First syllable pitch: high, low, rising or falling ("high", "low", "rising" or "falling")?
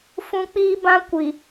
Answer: high